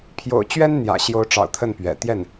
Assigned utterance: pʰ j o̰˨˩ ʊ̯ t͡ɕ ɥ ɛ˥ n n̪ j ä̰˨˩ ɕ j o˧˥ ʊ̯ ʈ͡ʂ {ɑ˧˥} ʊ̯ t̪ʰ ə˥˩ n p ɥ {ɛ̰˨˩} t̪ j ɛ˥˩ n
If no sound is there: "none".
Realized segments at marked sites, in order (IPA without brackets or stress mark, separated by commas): ɑ̰˨˩, ɛ̰˨˩